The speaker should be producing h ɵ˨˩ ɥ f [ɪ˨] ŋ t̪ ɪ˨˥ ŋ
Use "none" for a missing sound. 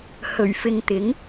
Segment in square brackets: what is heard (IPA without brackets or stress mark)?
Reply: ɪ˨